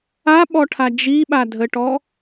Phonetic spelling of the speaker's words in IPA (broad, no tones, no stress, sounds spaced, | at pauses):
a ɓ ɔ ʈʰ a d͡ʒ i ɓ a dʱ ə ʈ ɔ